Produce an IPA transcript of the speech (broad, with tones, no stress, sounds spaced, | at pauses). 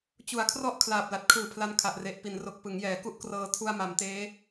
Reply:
t͡ɕ u˨˩ a̯ kʰ r ɔ˥˩ ʔ kʰ l aː˨˩ p̚ l a˨˩ t̚ kʰ ɯː˨˩ pʰ l a˦˥ n kʰ a˨˩ ʔ r e˨˩ ʔ p i˩˦ n r o˨˩ k̚ p ɯ˩˦ ŋ j ɛː˩˦ k u˥˩ ʔ k r ɤː˧ tʰ u˧ a̯ m a˩˦ m t eː˦˥